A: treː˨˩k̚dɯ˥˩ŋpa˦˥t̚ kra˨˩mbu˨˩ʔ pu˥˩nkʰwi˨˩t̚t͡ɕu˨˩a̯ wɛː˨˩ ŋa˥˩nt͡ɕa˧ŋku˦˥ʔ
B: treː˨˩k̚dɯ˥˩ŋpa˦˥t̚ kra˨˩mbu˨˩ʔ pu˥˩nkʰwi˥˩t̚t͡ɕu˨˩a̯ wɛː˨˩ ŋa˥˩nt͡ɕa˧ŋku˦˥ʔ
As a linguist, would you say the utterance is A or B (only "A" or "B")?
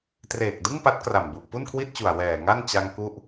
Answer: B